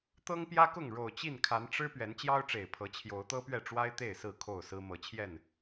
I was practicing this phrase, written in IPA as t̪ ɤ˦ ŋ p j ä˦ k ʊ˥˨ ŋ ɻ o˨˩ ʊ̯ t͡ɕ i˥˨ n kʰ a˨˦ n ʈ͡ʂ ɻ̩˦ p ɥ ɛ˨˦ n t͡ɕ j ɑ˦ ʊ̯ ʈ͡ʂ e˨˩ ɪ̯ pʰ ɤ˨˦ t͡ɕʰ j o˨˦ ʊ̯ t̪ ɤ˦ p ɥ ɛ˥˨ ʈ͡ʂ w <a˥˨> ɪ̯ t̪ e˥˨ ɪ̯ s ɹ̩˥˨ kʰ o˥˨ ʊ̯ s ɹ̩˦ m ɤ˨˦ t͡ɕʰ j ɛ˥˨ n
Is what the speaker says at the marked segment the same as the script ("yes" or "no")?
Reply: no